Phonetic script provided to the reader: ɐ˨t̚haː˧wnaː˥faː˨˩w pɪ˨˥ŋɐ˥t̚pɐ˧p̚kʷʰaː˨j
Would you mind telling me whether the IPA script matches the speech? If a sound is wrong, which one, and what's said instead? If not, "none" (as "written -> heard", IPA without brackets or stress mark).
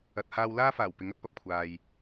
n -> l